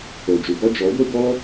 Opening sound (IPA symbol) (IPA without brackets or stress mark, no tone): o